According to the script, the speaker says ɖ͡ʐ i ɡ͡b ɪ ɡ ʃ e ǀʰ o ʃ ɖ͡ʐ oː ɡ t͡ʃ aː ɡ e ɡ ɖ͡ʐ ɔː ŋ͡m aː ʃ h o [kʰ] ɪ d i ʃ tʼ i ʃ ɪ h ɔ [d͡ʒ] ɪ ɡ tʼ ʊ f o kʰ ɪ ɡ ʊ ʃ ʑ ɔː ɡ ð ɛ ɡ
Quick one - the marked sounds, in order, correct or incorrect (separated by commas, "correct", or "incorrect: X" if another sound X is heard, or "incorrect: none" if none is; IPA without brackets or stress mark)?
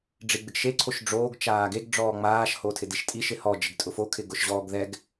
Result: incorrect: tʰ, correct